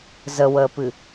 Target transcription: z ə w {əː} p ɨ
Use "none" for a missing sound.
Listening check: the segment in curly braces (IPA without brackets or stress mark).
əː